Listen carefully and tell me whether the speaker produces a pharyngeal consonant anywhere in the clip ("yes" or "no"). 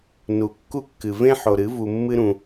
yes